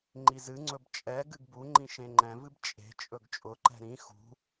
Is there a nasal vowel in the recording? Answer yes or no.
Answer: yes